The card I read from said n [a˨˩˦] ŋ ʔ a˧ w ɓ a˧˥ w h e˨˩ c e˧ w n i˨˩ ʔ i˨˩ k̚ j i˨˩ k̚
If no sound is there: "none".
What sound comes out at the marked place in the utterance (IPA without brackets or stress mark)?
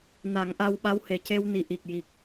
a˨˩˦